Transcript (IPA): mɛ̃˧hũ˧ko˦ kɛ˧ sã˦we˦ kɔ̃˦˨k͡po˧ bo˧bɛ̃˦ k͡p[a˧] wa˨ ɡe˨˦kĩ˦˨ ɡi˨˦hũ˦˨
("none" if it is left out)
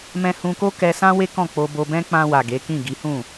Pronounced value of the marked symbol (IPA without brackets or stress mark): ã˧